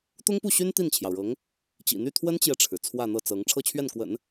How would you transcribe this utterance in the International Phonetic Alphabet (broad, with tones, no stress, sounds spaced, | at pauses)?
t̪ ʊ˥ ŋ p u˥˩ ɕ y˥ n t̪ i˥˩ n t͡ɕʰ j ɑ˩ ʊ̯ ɻ ɤ˧˥ ŋ | t͡ɕ ḭ˨˩ n̪ y˥˩ t̪ʰ w ə˥ n t͡ɕ j ɛ˨ ʈ͡ʂʰ ɻ̩˩ t͡sʰ w ä˥˧ n̪ ɤ˥˩ t͡s ɤ˧˥ ŋ ʈ͡ʂʰ ɤ˥˧ t͡ɕʰ ɥ ɛ˥˩ n k w ə̰˨˩˦ n